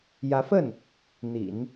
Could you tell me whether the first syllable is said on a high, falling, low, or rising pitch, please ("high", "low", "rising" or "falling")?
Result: rising